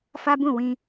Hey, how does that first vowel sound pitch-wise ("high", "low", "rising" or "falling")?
high